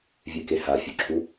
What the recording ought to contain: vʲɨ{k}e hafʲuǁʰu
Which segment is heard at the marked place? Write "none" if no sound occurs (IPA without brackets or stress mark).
k